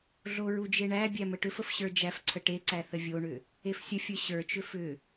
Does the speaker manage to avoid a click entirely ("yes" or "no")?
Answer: no